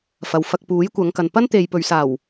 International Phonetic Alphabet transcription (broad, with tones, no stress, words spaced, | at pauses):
fɐ˨w fɐ˧k̚puː˨˥jkʷɐ˨˧ŋkɐ˨n pɐ˥nt̪e˨jpɵ˨ɥsaː˨˩w